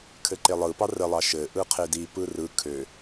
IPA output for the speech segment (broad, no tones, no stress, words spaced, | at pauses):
kʰɘǃelˠɯpɑ rəlˠɑ ʃɘ ʔɯqʰedi pɯrɯ kʰø